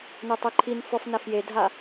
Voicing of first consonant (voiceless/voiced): voiced